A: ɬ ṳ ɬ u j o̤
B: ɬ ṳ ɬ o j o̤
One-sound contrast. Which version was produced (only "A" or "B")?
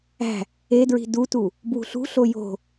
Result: B